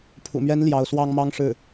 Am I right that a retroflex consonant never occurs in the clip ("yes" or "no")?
no